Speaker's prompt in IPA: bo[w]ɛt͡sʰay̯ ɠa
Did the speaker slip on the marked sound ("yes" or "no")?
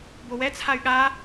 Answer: no